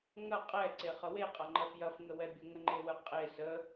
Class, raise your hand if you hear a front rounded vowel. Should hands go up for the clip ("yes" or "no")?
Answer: no